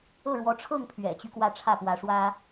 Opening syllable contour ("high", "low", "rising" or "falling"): falling